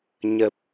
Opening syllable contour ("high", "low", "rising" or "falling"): low